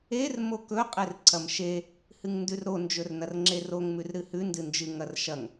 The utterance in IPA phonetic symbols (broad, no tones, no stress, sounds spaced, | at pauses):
e r m o k ɵ qʼ e r ǀʰ ɐ m ʃ e | h ɨ ŋ n d ʉ r ɾ o n d͡ʒ ɵ r n ɐ r ŋ͡ǁ e r o ŋ m ʉ r ɾ ɨ h ʉ n d ɨ n d͡ʒ ɨ ŋ ɐ r ʃ ɐ ŋ